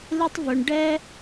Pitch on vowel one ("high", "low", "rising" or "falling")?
high